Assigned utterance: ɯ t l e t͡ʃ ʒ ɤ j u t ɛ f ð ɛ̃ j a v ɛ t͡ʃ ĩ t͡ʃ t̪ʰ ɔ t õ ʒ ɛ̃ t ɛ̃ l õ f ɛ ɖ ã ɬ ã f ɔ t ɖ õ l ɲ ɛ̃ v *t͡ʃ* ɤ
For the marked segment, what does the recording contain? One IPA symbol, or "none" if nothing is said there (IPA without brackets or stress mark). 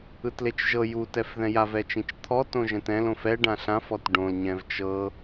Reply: t͡ʃ